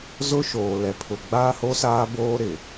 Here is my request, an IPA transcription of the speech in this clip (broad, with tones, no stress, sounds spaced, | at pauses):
z ʊ˦ ʃ oː˨ l ɛ˨ pʰ ʊ˨ ɡ͡b aː˦ h o˦ s aː˦ b oː˦ ɾ ɪ˨